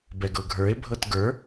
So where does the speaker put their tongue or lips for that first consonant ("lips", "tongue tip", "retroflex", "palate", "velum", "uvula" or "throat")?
lips